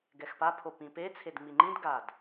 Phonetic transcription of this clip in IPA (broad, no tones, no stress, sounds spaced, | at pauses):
ɡ ɛ x p a pʰ o p ĩ p e t͡sʰ e d ŋ͡m i ŋ͡ǃ ĩ d ɡ a d